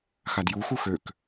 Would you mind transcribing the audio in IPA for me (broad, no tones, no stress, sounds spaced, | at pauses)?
x a d j u x u x ø k